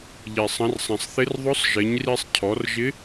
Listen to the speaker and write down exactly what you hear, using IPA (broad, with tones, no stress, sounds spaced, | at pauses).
ʎ i˩ sˤ ə̃˩˧ r sˤ ɛ̃˩ sˤ θ ɪ˧˥ r ðˤ ʊ˧˥ sˤ ʒ ɪ˩˧ ɲ r i˧ sˤ cʰ ɔ˩˧ r ʒ ɪ˧˥